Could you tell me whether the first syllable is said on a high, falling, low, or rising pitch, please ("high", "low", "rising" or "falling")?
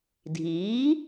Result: rising